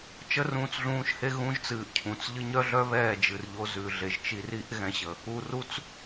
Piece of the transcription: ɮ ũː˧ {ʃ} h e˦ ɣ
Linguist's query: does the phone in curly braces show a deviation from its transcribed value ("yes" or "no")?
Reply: no